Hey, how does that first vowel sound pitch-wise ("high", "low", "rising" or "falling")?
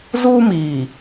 high